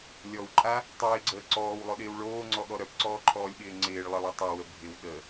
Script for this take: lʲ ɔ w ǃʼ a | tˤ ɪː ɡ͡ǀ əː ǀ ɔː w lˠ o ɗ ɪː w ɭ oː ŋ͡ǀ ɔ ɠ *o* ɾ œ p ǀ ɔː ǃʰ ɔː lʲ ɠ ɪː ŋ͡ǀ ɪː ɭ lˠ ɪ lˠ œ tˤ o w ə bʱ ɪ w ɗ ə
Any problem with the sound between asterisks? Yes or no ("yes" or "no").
yes